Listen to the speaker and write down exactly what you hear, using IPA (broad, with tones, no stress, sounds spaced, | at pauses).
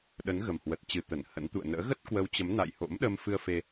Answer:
ɗ ə˨˦ n ɣ ə˨˩ m h w ə˨˩ t̚ t͡ɕ ɨ˨˩ t̪ ə˧˩ n h ə̰˧˥ n t̪ ṵ˧˨ ə̯ n ə̰ː˧˥ ɣ ə˦˥ t̚ k w ə˨˦ w t͡ɕ ə˨˦ m n a̰˧˨ j h o̰˧˥ m ɗ ə˧ m f ɨ˧ ə̯ f e˧